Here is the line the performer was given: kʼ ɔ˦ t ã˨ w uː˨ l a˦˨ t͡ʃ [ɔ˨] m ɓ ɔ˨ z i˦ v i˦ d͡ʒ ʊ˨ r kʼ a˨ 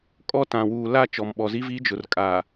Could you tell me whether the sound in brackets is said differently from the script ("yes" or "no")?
no